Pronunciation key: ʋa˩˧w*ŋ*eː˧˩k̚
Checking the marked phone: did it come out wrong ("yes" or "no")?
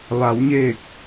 yes